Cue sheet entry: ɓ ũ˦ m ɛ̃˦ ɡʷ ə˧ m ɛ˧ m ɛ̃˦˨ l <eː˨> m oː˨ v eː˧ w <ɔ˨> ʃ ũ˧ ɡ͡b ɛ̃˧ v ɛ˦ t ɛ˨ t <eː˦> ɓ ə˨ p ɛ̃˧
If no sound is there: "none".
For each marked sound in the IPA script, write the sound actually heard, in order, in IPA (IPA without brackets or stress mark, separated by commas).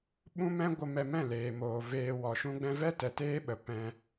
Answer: eː˨, ɔ˨, eː˦